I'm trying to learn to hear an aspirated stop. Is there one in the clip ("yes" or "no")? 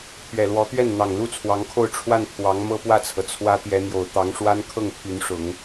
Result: yes